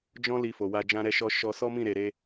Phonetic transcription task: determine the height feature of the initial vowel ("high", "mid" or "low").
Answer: mid